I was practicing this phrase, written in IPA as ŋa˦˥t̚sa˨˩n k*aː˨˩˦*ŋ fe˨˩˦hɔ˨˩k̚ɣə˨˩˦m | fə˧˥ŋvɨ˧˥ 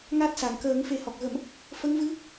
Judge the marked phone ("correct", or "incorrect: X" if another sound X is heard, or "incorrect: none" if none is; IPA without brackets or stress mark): incorrect: əː˨˩˦